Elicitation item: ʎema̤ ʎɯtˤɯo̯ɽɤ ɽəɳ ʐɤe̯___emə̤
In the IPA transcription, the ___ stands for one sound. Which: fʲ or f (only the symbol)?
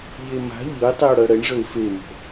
f